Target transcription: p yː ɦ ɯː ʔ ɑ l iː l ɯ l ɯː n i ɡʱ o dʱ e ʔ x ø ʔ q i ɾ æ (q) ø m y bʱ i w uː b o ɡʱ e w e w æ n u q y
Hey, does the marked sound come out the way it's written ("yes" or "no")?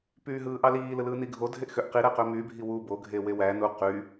yes